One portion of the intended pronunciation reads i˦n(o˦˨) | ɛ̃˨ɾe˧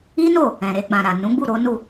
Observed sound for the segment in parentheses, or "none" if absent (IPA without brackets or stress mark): o˦˨